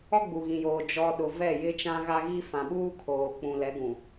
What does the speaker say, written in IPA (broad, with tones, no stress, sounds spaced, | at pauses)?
ɔ˦ ɡ͡b u˨ ɣ ĩ˨ j oː˨ d͡ʒ ɔ˨ ɗ ʊ˨ v ɛ˦˨ j ɪ˦ t͡ʃ ã˦ ɣ a˦ ɣ i˦ f ã˨ ɓ uː˦ kʰ oː˨ k͡p ũ˨ l ɛ˨˦ ɡ ũ˨